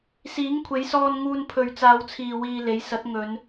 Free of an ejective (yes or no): yes